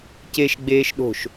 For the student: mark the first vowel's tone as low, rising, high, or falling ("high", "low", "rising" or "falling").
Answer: low